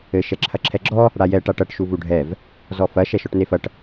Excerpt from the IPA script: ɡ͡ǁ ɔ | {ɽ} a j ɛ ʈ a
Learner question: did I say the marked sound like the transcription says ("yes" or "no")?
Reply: yes